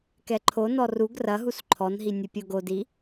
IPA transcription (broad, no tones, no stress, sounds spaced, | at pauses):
k ɛ ǃʰ o n ɔ r u ɡ r ɐ ɦ u s ǃʰ ɔ n ɦ i nʲ u pʲ o ɡ o d i